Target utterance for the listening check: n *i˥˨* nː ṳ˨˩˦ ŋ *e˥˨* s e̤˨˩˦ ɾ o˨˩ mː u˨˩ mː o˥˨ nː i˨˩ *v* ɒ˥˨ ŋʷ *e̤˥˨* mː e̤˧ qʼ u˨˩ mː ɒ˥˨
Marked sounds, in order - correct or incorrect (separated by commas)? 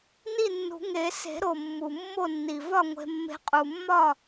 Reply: correct, incorrect, correct, incorrect